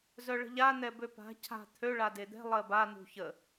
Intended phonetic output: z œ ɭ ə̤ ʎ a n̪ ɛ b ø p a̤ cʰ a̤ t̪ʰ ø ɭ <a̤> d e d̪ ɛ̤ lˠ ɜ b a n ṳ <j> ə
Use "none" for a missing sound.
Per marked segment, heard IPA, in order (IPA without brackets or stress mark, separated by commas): a, ç